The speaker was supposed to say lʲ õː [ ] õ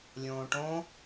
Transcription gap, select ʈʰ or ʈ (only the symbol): ʈ